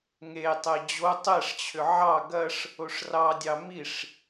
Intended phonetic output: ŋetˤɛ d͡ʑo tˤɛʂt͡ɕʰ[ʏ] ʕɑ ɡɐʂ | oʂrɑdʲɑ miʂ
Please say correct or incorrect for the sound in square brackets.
correct